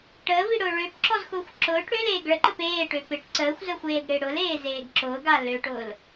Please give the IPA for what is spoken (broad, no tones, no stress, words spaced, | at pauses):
ʈəːviɽʊː ɭøpǁɔzxʊːxʷ ǁʊːʈ ɽøleːɡ ɭəǃəp eːʈø pɪʈ ǀəːxʷzəːxʷeːɡɽɪː ɽʊleːzeːɡ ǁʊːɡa løʈʊːl